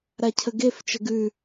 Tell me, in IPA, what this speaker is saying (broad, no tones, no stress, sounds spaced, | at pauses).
ɾ a cʰ ə ɡ e f t͡ʃ ə ɡ ʉ